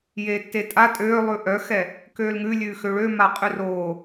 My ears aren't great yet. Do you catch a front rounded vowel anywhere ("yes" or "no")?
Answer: yes